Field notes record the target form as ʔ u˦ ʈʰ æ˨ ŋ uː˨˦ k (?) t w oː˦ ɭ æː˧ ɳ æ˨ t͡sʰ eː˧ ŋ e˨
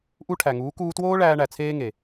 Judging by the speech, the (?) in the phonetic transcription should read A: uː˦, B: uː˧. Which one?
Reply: B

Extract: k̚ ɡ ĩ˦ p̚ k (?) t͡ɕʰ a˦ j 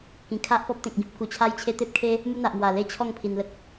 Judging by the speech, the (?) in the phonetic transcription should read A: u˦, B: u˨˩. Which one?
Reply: B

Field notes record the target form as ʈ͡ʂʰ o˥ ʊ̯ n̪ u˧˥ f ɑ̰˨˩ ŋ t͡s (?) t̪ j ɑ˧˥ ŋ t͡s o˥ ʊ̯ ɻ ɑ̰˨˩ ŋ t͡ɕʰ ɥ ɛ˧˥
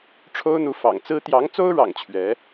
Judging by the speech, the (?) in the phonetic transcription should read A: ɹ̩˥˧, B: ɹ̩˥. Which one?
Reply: B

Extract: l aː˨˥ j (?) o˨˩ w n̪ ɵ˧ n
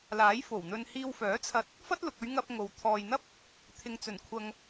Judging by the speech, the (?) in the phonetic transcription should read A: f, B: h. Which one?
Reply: A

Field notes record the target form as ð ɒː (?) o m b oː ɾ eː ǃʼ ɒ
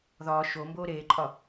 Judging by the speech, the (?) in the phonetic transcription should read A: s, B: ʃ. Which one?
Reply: B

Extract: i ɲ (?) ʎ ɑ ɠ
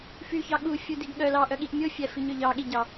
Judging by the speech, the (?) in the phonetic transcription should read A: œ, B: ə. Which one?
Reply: A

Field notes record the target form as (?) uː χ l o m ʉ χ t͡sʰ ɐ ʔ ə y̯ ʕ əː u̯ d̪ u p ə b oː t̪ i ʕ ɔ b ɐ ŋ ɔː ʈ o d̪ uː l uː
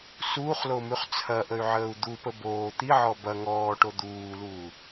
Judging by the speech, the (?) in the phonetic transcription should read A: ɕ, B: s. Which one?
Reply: B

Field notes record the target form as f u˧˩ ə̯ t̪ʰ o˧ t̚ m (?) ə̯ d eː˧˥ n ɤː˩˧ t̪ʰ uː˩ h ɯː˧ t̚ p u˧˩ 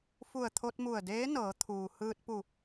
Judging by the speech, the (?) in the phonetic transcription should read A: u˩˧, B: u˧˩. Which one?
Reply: B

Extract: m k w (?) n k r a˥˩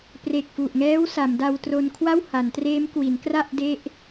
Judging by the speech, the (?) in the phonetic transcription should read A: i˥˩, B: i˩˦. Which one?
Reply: B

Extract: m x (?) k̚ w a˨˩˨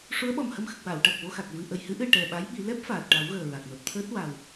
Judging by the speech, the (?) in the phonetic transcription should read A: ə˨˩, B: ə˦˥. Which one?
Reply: A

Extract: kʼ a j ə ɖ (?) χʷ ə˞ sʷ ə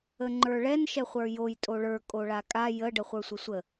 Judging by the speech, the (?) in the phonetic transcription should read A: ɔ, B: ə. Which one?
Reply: B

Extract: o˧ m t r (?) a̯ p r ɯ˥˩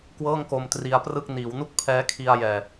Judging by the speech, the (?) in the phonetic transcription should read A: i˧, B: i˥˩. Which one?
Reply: A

